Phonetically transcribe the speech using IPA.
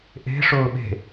ʔ e̤ ʂ ʊː ɓ e̤

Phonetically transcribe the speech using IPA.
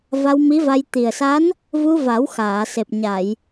v a˧ w m i˧˥ v a˧ j t̪ i˨˩ ə̯ s a˧˥ n | v u˧ v a˨˩˦ w x aː˨˩˨ s e˨˩ p̚ ɲ a˨˩˨ j

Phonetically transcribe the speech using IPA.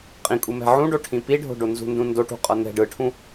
qʼ ĩ kʼ u m ɛ̤ ʕ ũ ɖ o ʈʰ ĩ p i ɖʱ o̤ ɖ o n z ṳ n d ũ n d o ʈ ṳ qʼ ʌ n̪ ɛ̤ ɖ ɯ ʈʰ ũ

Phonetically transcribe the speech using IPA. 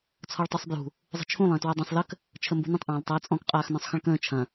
t͡sʰ ɔ ɭ tˤ o sˤ b j ṳ | zˤ ə̤ t͡ʃʰ ũ lˠ ə̃ː t w a dˤ ə̃ sˤ l ə k | t͡ʃʰ ə m b ṳ n ə̃ tˤ ʔ ãː l tˤ ɐː t͡sʼ ɔ̃ k qʼ aː x n ɔ̃ sˤ x ə̃ ɭ k ə̃ː t͡ʃʰ ɐ̃

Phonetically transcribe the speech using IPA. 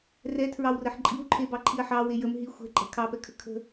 r ɛ tʰ ɹ ɑ w r ə ħ ǃʼ i w ǃʰ e b ɑ ǃʰ i ɐ̯ ħ ɑ w e j ə m ɦ i xʷ ɛ̤ ǃʼ ɛ̤ kʰ ɑ p ɛ kʰ ə kʰ ə̤

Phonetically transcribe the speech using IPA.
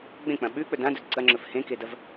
ɡ͡b ẽ k͡p ɐ̃ ɓ ʉ k͡p ɵ d ã d ɵ d ǀ ɐ ŋ͡ǁ ɵ f h ẽ k e d ɐ v

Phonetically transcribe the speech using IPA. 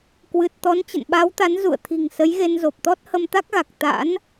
k w ɨ˨˩ t̚ t̪ ɔ˨˦ n t͡ɕ ə̰˧˨ n ɓ a˨˦ w t̪ a˨˦ n z ṵ˧˨ ə̯ t̪ʰ i̤˨˩ ŋ s ə˨˦ j ɣ e˧ n z o˨˩ p̚ t̪ ɔ˦˥ t̚ h ə˧ m t̪ a˦˥ k̚ ɣ a˨˩ k̚ t̪ a̰˧˥ n

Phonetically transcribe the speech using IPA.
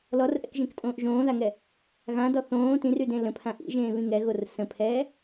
l ɔ r ʔ ɛ̰ k ʒ ẽ k tʼ õː ʔ ʒ õː ð a ŋ ɛ | ɣ ã d ɔ θ õː t ĩ r y d ẽ l ə̃ pʰ ã ʔ ḭ ʒ ẽː β ĩ ŋ ɛ ɣ o r s ə̃ pʰ ɛː

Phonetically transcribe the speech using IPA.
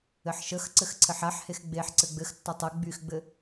ɘ ħ ʃ ə x ǀ ɘ x ǀʰ ɘ ħ a ħ h e x ɡ͡b e ħ ǀ ɘ ɡ͡b ɘ x tː ɒ tˤ ɘ ɡ͡b y x ɡ͡b ɘ

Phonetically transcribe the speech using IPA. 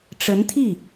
ʈ͡ʂ ə˧˥ n t̪ʰ i˥˩

